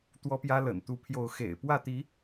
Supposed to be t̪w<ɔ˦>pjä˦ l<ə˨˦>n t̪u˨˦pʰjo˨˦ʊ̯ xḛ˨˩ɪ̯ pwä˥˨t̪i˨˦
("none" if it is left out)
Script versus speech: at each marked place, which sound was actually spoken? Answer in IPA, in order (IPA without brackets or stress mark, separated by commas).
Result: ɔ˦, ə̰˨˩